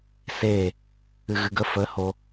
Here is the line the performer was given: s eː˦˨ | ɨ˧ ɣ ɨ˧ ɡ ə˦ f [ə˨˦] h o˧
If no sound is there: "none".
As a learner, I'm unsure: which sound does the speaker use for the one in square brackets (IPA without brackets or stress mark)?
ə˨˦